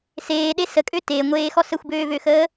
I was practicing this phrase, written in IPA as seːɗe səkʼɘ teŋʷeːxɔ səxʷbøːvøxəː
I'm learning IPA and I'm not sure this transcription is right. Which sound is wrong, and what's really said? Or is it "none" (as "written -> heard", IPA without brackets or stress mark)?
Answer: ɘ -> ø